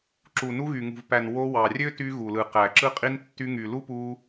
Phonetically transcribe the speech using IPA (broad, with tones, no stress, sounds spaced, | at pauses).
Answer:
ǁ u˨ n u˧ ɣ y˨ ŋ ṳ˨ v p æ˨ n w o˧ w ɑ˨ rʲ ø˦ t y˧ ɣ u˨ l ɯ˨ q æ˨ ǁ ɯ˧ qʼ i˧ n tː y˧ ŋ y˨ l u˦ p u˧